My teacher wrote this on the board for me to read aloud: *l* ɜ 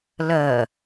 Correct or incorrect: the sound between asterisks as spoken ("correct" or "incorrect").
correct